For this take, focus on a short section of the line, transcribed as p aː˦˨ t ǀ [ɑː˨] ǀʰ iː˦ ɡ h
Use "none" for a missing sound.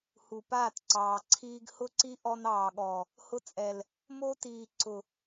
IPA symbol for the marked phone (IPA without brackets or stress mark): ɑː˨